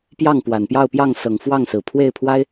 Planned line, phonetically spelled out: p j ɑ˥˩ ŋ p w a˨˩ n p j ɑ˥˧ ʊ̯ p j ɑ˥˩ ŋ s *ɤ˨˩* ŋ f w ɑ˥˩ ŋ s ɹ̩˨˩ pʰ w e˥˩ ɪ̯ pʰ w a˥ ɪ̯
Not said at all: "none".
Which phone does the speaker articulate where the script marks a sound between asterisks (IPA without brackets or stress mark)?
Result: ɤ˨˩